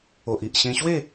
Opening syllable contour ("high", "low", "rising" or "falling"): low